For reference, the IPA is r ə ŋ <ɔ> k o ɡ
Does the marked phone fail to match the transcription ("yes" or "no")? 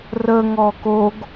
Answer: no